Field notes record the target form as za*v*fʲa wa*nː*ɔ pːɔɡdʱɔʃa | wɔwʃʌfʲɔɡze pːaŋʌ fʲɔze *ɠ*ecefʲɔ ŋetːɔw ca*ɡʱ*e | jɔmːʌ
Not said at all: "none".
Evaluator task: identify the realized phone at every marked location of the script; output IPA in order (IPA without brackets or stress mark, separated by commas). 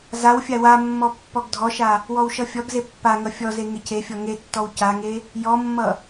w, mː, ŋ, ŋ